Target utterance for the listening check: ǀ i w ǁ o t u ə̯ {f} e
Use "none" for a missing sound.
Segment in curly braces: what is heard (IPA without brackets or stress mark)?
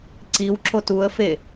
f